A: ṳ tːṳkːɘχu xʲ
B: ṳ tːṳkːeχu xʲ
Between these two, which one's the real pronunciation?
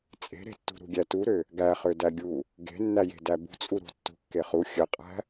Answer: B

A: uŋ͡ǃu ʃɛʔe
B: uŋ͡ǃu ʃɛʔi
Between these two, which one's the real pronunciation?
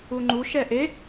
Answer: A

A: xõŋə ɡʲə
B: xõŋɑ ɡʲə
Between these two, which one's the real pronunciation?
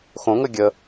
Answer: A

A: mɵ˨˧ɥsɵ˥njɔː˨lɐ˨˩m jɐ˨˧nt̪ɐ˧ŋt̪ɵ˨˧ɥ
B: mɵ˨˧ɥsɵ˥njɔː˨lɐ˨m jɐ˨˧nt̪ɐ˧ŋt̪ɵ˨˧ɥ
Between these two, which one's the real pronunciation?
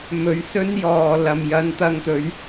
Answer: B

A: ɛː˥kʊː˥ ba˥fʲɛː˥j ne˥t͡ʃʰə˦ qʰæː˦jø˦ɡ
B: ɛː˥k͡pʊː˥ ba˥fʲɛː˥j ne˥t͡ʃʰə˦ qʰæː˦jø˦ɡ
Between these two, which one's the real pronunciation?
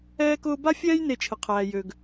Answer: A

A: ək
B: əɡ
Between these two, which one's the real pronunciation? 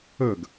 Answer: B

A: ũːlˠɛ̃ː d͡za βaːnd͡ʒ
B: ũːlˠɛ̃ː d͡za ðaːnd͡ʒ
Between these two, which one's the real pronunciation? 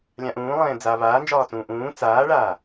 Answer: A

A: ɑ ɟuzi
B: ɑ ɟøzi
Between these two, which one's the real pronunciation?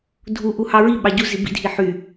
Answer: A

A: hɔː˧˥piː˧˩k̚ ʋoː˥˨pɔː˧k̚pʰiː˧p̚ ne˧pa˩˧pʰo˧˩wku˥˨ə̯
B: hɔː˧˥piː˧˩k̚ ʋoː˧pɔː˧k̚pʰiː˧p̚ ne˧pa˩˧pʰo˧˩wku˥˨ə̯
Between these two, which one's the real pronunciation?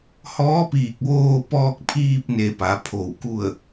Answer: B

